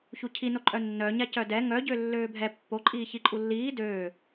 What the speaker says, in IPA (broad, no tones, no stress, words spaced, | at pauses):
çucʰinoǃʼœ nːœɲa cœdɛ ŋœɟø lːøːbʱɛ pːoǃʼiː çiǃʼulːiː døː